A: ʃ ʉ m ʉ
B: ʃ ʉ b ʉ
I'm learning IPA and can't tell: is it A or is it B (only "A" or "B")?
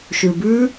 B